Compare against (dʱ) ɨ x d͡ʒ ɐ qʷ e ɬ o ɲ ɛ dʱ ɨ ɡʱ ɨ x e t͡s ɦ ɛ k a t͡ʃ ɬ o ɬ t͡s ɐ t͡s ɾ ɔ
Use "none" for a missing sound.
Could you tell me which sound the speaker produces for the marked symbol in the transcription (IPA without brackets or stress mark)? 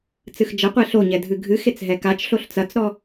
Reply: t͡s